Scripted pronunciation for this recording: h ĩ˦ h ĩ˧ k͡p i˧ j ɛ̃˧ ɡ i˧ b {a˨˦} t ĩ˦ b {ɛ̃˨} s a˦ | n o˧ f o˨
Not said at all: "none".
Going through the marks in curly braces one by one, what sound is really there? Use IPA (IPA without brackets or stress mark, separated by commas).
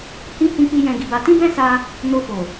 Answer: a˧, ɛ̃˦